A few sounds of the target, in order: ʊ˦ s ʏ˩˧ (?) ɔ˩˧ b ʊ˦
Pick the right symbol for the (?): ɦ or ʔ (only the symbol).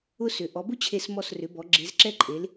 ʔ